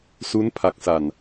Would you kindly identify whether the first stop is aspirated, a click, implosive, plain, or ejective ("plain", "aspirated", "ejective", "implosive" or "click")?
aspirated